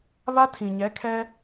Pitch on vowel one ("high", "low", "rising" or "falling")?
high